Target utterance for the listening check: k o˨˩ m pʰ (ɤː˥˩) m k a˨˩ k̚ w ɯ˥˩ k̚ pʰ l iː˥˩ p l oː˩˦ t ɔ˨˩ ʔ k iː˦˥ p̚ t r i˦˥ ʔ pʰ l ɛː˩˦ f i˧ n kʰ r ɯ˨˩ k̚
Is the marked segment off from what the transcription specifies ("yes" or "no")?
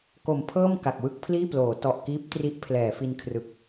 no